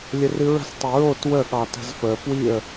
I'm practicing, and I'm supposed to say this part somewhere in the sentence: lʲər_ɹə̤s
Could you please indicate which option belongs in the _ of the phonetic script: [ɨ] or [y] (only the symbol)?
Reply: ɨ